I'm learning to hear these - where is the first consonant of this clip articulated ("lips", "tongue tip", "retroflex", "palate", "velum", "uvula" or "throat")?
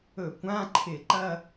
velum